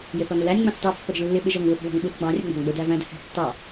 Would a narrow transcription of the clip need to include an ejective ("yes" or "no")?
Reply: no